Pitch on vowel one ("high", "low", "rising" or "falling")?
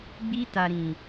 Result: high